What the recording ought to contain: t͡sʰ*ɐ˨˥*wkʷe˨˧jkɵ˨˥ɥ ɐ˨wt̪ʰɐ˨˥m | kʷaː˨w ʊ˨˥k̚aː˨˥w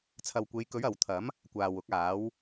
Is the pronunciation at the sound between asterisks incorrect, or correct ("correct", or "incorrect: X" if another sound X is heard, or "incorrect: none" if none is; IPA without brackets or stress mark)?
incorrect: ɐ˨